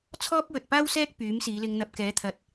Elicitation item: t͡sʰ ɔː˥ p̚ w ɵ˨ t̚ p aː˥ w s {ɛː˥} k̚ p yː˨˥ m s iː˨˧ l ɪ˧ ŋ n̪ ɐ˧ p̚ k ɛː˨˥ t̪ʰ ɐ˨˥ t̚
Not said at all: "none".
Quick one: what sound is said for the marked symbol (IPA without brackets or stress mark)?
ɛː˥